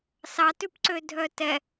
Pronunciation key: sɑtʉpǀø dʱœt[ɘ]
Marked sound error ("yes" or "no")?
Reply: yes